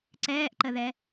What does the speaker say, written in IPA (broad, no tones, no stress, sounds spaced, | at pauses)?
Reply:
ǀ ɛː ʔ ǃ ə ð ɛ